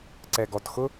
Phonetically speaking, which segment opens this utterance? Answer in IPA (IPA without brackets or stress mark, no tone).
ǀ